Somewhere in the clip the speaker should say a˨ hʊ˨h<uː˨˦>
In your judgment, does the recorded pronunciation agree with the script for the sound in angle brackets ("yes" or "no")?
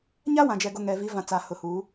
yes